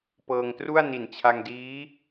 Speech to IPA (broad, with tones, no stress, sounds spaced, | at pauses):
p ɤː˧ ŋ t r u˥˩ a̯ n i˩˦ n t͡ɕʰ a˧ ŋ d iː˦˥